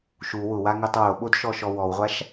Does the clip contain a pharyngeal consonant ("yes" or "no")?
no